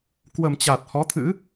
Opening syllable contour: low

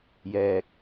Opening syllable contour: low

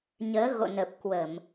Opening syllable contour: rising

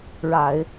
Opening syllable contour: low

